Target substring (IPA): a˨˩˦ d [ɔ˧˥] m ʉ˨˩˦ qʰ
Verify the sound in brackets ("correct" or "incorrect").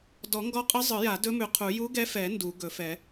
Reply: incorrect